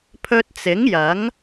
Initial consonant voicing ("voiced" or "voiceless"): voiceless